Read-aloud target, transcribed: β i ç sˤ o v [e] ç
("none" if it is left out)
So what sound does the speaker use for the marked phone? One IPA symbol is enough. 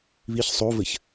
ɘ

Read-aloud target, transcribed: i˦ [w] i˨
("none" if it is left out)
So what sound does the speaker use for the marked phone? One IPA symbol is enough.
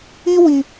w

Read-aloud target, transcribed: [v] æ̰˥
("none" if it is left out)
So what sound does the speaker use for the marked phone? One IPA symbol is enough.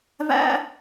v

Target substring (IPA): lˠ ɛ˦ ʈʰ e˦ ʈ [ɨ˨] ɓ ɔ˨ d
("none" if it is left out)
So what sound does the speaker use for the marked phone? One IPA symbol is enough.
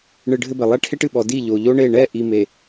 ɨ˨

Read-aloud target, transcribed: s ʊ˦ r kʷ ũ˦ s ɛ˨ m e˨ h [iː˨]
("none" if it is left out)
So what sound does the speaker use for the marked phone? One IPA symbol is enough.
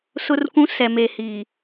iː˨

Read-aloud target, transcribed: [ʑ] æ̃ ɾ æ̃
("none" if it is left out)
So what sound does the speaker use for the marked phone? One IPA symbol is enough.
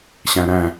ɕ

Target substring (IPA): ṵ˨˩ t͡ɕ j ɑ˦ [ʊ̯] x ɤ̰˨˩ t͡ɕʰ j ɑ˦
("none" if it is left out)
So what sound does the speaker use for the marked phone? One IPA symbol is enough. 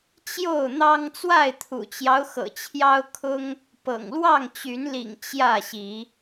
ʊ̯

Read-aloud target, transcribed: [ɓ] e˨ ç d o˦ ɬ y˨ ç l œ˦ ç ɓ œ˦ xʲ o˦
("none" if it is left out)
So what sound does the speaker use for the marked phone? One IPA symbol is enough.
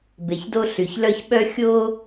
b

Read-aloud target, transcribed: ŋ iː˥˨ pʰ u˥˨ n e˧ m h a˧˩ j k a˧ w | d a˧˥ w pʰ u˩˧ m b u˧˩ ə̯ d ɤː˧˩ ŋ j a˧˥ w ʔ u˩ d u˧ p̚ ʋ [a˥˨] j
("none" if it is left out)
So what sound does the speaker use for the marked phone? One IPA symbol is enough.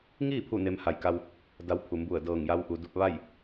a˥˨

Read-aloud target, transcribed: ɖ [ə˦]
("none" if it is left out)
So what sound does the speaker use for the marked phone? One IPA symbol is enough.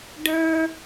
ə˞˦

